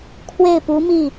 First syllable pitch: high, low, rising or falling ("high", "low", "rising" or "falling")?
falling